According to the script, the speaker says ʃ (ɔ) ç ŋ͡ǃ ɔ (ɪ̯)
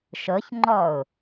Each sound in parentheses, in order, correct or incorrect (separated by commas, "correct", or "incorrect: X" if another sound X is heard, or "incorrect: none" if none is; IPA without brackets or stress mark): incorrect: ɤ, incorrect: ʊ̯